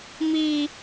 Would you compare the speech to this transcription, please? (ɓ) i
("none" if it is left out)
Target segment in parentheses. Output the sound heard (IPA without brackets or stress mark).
m